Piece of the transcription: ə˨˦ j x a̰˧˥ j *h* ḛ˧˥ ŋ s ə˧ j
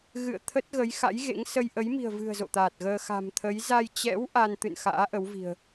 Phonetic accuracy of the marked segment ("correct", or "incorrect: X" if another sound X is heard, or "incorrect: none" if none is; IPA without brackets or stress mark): incorrect: ɣ